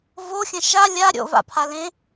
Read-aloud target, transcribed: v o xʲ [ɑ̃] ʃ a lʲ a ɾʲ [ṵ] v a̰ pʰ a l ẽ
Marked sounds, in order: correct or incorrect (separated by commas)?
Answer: incorrect, incorrect